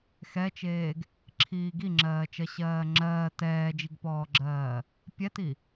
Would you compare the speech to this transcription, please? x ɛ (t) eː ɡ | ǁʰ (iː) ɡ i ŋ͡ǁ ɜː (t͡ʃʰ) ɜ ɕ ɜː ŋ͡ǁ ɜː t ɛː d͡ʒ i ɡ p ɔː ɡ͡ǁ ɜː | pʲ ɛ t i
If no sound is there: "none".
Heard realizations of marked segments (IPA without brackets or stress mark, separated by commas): t͡ʃ, iː, t͡ʃ